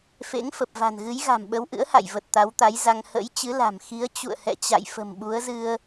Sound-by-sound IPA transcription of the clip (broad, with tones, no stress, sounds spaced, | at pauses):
f ḛ˧˥ ŋ f ə˨˩ p̚ v a̤˨˩ n ɣ ɨ˨˦ j ɣ a̤˨˩ m ɓ ə˨˦ w ʔ ɨ̰˧˥ ə̯ h a̰˧˨ j v ə˨˩ t̚ t̪ a˨˦ w t̪ a˨˦ j z a˧ ŋ h ə̰˧˥ j t͡ɕ ɨ˨˦ l a̤˨˩ m x i˨˦ ə̯ t͡ɕ ṵ˧˨ ə̯ h ɛ̰˧˨ t͡ɕ a̰˧˨ j f ə̤˨˩ m ɓ u˨˦ ə̯ z ɨ˧ ə̯